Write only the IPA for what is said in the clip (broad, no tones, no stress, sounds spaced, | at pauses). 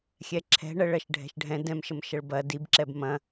xʲ ɛ ǁʰ ɛ̤ ɳ ə ɭ ɜ ʃ ɖʱ ɛ̤ ʃ ɖʱ ɛ̃ d ɛ̃ m ʃ ə m ʃ ə ɭ b ɐ d i b ǁ ɛ b m ɐ̃